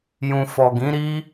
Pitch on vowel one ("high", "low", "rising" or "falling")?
low